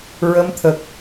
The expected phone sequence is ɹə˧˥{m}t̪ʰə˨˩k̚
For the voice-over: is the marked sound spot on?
yes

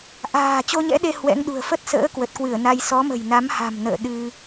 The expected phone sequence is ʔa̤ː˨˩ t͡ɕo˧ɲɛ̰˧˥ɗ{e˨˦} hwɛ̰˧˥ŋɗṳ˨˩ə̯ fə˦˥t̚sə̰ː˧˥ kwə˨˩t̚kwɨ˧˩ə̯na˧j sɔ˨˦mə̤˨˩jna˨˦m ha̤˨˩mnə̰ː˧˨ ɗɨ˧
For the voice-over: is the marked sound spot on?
no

